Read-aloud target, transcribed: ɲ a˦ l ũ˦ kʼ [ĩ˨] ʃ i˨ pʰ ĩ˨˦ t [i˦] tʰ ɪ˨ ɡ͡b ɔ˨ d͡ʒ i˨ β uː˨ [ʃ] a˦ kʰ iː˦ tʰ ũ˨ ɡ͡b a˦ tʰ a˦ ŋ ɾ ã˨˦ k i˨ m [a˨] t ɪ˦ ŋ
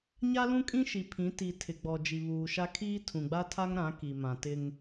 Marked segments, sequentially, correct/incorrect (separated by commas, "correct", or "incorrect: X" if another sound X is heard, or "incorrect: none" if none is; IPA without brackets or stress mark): incorrect: ĩ˦, incorrect: i˨, correct, incorrect: ã˨